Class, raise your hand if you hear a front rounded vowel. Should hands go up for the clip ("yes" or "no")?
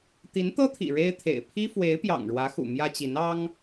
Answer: no